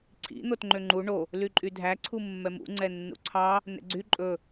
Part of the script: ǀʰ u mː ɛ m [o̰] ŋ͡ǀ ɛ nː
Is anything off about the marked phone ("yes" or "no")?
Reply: yes